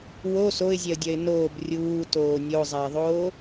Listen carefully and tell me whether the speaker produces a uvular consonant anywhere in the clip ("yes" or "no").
no